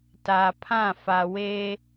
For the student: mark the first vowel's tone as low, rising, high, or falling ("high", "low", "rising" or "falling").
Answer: low